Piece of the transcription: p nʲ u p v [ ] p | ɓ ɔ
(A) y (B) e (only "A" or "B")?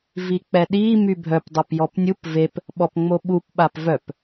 B